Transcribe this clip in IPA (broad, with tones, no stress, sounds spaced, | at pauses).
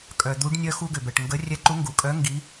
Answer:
kʼ œ˩ d̪ u˨˥ ɖ nʲ œ˦ x u˦ ɡ ʏ˩ b ɛ˩ ʈ ŋ ɡ ə˨˥ rʲ ɛ˨˥ ǃ u˨˥ ŋ ɡ u˩ kʼ œ˨˥ ŋ ɡ i˨˥